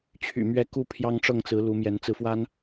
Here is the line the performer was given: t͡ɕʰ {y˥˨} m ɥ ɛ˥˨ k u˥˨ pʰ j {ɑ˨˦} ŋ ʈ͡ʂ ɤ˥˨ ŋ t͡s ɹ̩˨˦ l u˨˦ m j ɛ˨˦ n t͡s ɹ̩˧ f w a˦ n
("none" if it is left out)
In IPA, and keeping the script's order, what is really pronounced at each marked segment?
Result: y̰˨˩, ɑ˦

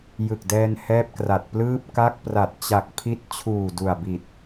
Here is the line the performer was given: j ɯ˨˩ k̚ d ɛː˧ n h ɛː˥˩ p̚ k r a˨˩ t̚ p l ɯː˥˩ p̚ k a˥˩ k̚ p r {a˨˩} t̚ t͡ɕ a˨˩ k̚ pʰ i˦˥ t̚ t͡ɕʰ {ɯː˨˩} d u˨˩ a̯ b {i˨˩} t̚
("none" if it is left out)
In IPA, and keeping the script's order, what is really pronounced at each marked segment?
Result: a˨˩, uː˨˩, i˨˩

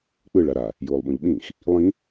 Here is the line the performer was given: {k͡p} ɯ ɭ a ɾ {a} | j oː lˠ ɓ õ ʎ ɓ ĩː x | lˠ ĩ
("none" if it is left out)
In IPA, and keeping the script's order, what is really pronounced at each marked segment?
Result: k͡p, a

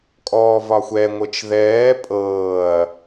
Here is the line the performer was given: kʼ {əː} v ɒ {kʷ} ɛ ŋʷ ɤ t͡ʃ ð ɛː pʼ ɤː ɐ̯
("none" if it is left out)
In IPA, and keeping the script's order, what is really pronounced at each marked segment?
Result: ɔː, xʷ

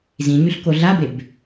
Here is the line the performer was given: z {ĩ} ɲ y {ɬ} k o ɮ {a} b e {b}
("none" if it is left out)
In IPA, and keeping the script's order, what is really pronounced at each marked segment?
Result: ĩ, ɬ, a, b

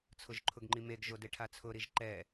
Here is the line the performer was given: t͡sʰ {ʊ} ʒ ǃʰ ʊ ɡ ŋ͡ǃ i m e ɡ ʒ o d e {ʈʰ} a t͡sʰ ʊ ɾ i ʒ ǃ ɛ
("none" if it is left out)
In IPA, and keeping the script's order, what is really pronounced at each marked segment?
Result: ʊ, ʈʰ

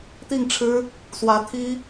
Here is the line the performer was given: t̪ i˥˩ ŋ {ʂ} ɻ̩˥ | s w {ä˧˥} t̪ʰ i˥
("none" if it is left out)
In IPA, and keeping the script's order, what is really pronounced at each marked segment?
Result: ʈ͡ʂʰ, ä˧˥

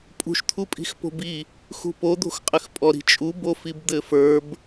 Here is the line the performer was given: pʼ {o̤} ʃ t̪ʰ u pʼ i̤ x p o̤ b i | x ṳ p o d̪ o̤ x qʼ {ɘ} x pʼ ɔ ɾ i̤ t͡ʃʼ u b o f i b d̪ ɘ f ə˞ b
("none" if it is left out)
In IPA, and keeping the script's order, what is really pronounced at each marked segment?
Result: ṳ, ɘ

